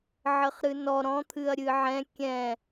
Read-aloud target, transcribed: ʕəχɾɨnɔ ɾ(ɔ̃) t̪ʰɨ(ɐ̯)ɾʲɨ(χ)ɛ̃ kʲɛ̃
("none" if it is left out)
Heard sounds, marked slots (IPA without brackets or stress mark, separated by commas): ɔ̃, ɐ̯, ʕ